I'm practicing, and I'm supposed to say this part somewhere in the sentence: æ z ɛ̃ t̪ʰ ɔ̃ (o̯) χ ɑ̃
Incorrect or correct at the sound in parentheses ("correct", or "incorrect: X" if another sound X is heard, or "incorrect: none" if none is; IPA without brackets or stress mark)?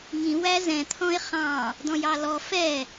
incorrect: e̯